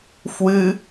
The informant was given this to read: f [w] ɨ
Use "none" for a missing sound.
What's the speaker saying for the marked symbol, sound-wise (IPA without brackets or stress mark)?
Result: w